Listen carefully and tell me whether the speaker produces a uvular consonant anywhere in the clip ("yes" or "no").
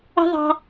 no